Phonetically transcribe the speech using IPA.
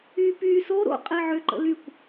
yː p yː s o ɾ o̰ qʼ e ʕ ʏ ǃ ə̰ l y kʷ

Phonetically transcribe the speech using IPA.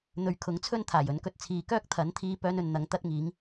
n̪ ɵ˨ ɥ kʰ ʊ˨˥ ŋ t͡sʰ ɵ˥ n t̪ʰ aː˨˩ j ɵ˨˥ n k ɵ˧ t̚ t͡sʰ iː˨˧ k œː˥ k̚ t̪ʰ ɐ˨˥ n t̪ʰ iː˧ p œː˥ n ɵ˨˧ n n̪ ɐ˨˥ ŋ t̪ ɐ˥ t̚ ŋ iː˨˥ ŋ

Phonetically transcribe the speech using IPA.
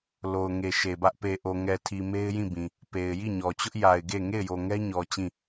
l o˨ ʊ̯ ŋ e˨ ʃ e˨ b ä˦ ʔ p e˨ ʔ o˨ ŋ ɛ˨ tʰ i˨ m e˦ ɪ̯ j ĩ˦˨ b ĩ˨ | p e˨ ɪ̯ j i˦˨ ɲ ɔ˨ t͡ɕ ʊ˦ ʔ j a˨ ɪ̯ ɡ e˦˨ ŋ e˦˨ ɪ̯ j o˨ ŋ ɛ˦ ɲ ɔ˨ t͡ɕ ĩ˦˨

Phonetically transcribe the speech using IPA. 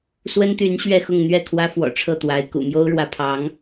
s w ə˥ n t̪ y˧˥ n ɕ ɥ ɛ˥˧ x ʊ˥˧ ŋ n̪ ɥ ɛ˥˩ kʰ w ä˥ f w ɔ̰˨˩ ʈ͡ʂʰ ɤ˥˩ t̪ w a˧˥ ɪ̯ k ṵ˨˩ m j o˥ ʊ̯ ɻ w ä˧˥ pʰ ɑ˧˥ ŋ

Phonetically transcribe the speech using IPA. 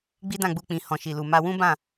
ɡ͡b i˦ d ã˦˨ ɡ͡b u˧ k͡p ĩ˨ h ɔ̃˨ ʃ i˨ l u˨ m a˧ w ũ˦ b ã˦˨

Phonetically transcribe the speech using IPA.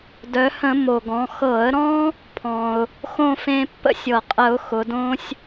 d œ˩˧ h ə̃˧˩˧ m o˩ ɡ ɔ̃˩˧ x ɤ˧˩˧ ə̯ ɾ ɔ̃˦ | pʰ ɔ̃˩ ʊ̯ | x õ˥˨ f ẽ˦ pː ə̰˦ sʲ ɤ˩ qʼ ə˧˩˧ ʊ̯ x ʊ˩˧ d õ˦ sʲ

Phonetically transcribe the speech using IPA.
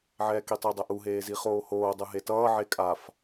ʕ ɛː k i tˤ u dˤ ɛ ʔ u ɦ eː z i χ oː h oː dˤ ɯ ɦ e t ʌː ʕ e kʼ a f

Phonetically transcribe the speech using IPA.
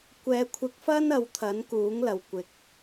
kʷ ɛː˨˧ kʷʰ ɪ˨˥ k̚ f ɐ˥ n ɐ˧ w t̪ʰ ɐ˨˥ n k uː˨˥ ŋ l ɐ˨ w kʷ ɪ˨ k̚

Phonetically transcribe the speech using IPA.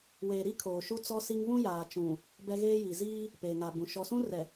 w eː˨ ɾ i˦ kʰ oː˨ ʃ u˦ t͡s ɔ˦ s i˦ ŋ β ũ˦ j aː˨ t͡ʃ ũ˨ | b ɛ˦ ɣ eː˦ j i˨ z iː˦ | p eː˨ ŋ a˨ b ũ˨ ʃ ɔ˨ s ũ˦ r ɛ˨

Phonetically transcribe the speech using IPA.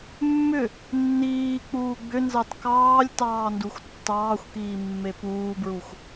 mː ʏ | nː iː k͡p uː ɡ͡b ʏ n z ɑ t k ɑː lʲ t ɑː n d u xʷ tː ɑː xʷ k iː mː e p uː b ɹ u xʷ

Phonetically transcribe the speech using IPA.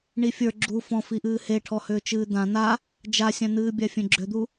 ɳ i fʲ ə˞ ɡ͡ǁ u f ɔ̃ f i ʔ ɨː h e ʈʰ ɔ h ʏː t͡ʃ ɨː d̪ ã n̪ a | d͡ʒ a sʲ ã n̪ ɨː bʲ a fʲ ẽ ɡ͡ǁ ʏ d̪ u

